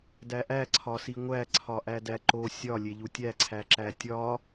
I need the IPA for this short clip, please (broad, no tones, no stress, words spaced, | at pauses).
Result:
dæʔæ ǀʰɒsiŋʷæ ǀʰɒʔædæǃo sʲɒ lʲeʎutʲæ ǀʰæǁætʲɒ